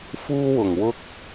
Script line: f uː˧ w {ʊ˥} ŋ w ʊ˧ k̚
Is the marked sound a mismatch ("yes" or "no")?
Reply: yes